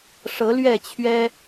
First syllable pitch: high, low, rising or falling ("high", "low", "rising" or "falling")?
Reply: rising